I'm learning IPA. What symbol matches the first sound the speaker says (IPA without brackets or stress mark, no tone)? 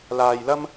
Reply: l